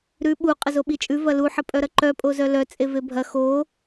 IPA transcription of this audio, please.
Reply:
ɾ ʉ ɓ u qʼ ə z o ɓ i t͡ʃʼ ʉ v ɐ l u ħ ə pʼ œ ɾ ɐ ǃ œ pʼ o z œ l œ t͡sʼ e v e bʱ ɐ x o

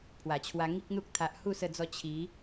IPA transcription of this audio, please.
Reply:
pʰ w a˨˩ t͡ɕʰ w a˧ ŋ i˦ k̚ n̪ u˦ k̚ t̪ʰ a˨ ʔ h u˥˧ s ə˧ d͡z ɔ˧ t͡ɕʰ i˨˦

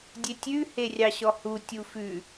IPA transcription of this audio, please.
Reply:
dʲ e tʲ ʉ h e rʲ ɑ ɕ ɔ h u tʲ u f ʉ

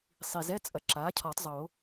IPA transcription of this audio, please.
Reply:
sˤ i˨˩ z ɛ˧˥˧ t͡sʼ ɐ˩˥ ǁ aː˩˥ cʰ ɔ˨˩˦ tˤ zˤ o˨˩˦

